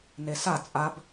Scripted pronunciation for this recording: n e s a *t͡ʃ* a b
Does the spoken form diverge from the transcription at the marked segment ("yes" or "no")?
yes